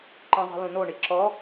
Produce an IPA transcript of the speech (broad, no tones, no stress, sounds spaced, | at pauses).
ǃ ĩ zˤ i̤ l ũ n o ɳ i ǁ ɔ